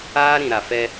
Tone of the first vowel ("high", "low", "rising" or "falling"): high